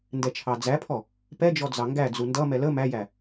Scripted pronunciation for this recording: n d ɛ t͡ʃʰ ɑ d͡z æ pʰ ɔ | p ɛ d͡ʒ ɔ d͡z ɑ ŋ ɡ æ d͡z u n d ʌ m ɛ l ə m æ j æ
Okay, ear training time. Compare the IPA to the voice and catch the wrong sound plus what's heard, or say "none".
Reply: none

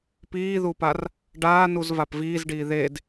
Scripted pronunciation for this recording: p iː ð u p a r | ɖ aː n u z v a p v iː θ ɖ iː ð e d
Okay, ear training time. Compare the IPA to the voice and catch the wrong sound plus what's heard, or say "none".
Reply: θ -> z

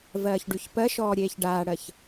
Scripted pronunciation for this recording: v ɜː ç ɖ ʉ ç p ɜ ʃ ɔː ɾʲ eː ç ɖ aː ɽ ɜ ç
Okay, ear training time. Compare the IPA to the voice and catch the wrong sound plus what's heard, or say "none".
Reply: none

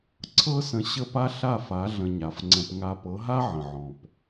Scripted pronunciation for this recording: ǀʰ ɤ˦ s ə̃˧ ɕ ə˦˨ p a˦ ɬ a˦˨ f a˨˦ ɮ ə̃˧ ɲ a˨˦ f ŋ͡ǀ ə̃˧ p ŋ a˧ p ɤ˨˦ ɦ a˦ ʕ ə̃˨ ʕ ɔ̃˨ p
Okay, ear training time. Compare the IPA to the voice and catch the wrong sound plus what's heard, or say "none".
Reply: none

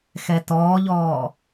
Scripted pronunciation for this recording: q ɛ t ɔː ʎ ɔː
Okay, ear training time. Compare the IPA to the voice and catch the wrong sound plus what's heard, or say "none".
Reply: q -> x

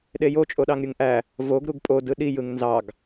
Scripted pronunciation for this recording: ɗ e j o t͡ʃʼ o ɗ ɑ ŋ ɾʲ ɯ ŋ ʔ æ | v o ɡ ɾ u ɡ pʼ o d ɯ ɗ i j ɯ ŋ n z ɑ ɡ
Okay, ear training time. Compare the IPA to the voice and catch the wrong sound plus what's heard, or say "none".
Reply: none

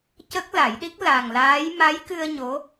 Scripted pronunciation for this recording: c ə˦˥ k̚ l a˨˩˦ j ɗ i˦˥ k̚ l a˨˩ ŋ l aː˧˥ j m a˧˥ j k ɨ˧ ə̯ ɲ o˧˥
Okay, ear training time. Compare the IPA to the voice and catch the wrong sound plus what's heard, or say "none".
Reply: none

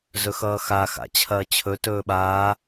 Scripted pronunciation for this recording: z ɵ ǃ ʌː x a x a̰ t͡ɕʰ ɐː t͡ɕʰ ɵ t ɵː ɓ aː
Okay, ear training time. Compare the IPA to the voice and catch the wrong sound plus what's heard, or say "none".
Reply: ǃ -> x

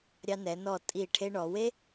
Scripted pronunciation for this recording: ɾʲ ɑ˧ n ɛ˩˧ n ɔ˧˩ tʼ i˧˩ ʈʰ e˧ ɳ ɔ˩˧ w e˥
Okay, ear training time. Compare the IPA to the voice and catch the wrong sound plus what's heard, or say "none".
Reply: none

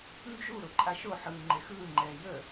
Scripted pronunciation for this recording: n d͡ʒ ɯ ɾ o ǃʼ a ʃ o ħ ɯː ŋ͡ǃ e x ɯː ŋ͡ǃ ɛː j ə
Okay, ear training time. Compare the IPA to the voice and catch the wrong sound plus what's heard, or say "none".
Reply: ɯ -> u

